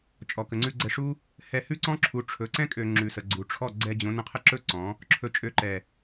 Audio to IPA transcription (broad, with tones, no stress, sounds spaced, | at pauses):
t͡ʃʼ ɔ˨ k ə˨ ŋ͡ǀ ʉ˧ ɡ͡ǀ ɛ˧ ʂ u˦ | h ɛ˧ h ʉ˦ ǀ ɔ̃˦ ǁʰ u˨˦ ʈ͡ʂʰ ɵ˨˦ ǀ ɛ̃˦ kʼ ø˨ ŋ͡ǁ ʉ˨ s ə˨ ɡ͡ǀ u˨ ʈ͡ʂʰ ɔ˦˨ ɡ͡ǀ ɛ˧ d͡ʑ õ˨˦ n ə̃˧ qʰ ə˦ ǁ ɵ˦ ǀ ɔ̃˨˦ | ǁʰ ɵ˧ t͡ʃʼ ø˧ ǃ ɛ˨